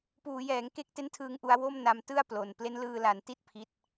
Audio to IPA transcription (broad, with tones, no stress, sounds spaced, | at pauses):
p uː˩˦ j ɛː˩˦ ŋ k e˦˥ k̚ t e˦˥ n tʰ ɯː˧ ŋ ʔ u˧ a̯ w o˥˩ m n a˧ m t ɯ˥˩ a̯ p l o˨˩ n p l e˦˥ n l ɯː˧ l a˩˦ n t i˥˩ t̚ pʰ i˦˥ t̚